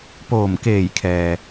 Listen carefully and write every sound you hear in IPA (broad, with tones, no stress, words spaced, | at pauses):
poː˧˩mkeː˧˩jkʰɛː˩